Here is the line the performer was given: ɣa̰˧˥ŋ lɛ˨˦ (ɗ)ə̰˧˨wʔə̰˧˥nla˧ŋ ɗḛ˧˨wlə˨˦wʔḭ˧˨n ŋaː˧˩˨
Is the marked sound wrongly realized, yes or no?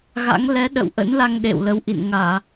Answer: no